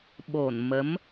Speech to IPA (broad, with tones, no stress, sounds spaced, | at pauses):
ɓ o˧˩ n m ə˨˦ m